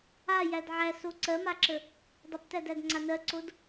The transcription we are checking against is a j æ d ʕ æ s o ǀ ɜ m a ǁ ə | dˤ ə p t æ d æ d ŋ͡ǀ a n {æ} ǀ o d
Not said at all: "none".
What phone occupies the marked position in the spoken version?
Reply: ɜ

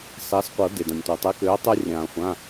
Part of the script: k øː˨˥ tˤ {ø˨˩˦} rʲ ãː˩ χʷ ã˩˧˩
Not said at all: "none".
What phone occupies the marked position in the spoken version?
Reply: ø˦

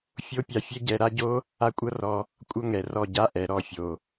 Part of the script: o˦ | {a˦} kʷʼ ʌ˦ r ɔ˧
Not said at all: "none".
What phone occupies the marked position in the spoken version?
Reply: a˦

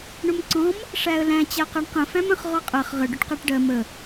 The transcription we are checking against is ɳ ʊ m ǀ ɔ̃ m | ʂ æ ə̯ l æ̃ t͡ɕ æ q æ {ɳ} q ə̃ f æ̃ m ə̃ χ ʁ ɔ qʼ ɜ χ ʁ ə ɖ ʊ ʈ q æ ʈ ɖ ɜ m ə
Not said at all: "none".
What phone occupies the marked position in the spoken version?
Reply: ɳ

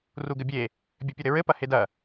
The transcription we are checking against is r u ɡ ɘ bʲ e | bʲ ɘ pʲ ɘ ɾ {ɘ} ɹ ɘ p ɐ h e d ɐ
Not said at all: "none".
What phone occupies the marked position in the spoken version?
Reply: ɘ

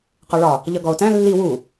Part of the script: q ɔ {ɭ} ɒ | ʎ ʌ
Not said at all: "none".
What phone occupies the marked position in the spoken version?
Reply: ɭ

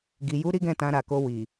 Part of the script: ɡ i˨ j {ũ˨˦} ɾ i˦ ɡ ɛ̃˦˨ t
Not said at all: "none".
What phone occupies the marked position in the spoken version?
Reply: u˨˦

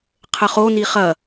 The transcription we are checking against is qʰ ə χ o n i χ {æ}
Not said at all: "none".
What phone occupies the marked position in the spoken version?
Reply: ɐ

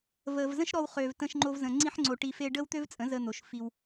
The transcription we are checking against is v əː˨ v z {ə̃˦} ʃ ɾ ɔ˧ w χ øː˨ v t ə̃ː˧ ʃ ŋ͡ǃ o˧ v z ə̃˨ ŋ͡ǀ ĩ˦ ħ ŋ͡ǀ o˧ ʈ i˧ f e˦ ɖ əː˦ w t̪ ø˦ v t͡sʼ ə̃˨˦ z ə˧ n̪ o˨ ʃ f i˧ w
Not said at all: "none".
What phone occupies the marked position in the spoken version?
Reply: ə̃˦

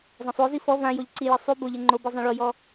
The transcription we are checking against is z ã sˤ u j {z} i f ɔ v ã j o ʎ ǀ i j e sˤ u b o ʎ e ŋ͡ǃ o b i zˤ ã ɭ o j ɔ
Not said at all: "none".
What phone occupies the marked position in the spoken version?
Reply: z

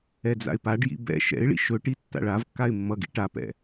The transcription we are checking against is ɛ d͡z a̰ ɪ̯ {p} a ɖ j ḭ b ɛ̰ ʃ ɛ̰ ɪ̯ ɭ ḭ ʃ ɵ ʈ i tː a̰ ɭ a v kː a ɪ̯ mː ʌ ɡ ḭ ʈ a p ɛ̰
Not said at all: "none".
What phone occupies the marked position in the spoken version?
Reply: p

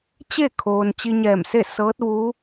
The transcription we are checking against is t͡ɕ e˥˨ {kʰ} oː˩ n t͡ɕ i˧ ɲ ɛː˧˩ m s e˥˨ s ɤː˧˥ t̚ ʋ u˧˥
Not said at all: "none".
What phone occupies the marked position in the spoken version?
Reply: kʰ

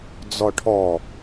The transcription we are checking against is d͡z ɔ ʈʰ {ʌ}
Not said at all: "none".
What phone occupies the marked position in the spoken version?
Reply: ɔ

